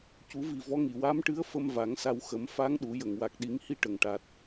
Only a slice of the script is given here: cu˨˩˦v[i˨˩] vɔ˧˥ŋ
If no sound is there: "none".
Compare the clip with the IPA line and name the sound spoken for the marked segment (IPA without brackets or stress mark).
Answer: i˨˩